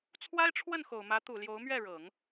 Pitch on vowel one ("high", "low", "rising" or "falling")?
high